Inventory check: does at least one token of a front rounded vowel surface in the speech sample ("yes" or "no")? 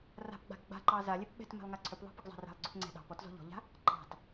yes